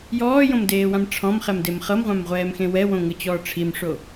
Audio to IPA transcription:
j ɔː j õ m d eː w ã m ʈ͡ʂʰ ɔ̃ m χ ɛ m d e m χ ɤ m ʁʷ ã m ʁʷ ɛː m x ẽ w ɛ w õ ŋ ɯ t͡ɕ ɔː ʈ͡ʂʰ i m ʂ o

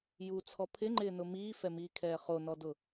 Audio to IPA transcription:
j u t͡sʰ ɔ pʰ ɪ ŋ͡ǃ ɪː n ʊ m iː f ɛ m iː kʰ ɛː χ o n ɔ d ʊ

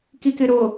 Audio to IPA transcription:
k i k ɪ ɾ o

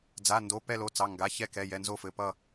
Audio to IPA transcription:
d͡z a˩˧˩ n d o˩˧˩ p ɛ˦˨ l o˩˧˩ t͡s ɑ˩˧˩ ŋ ɡ a˩˧˩ ç ɛ˦˨ k ɛ˩˧˩ j ɛ˩˧˩ n z o˦˨ f ɘ˩˧˩ p ʌ˦˨

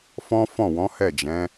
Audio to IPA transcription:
f ɔ̃˦ f ɔ̃˦˨ w ɔ̃˨˦ h ɛ˦˨ d͡ʒ ɛ̃˨˦

